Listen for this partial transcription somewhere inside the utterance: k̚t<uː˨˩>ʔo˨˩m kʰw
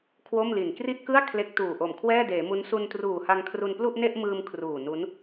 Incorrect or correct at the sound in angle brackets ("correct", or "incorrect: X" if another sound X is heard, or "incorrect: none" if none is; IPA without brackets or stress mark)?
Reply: correct